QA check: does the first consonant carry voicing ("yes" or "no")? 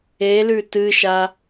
yes